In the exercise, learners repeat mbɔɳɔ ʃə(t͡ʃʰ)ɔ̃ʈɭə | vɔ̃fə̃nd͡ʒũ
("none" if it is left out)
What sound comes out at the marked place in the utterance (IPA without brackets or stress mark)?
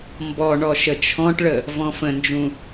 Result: t͡ʃʰ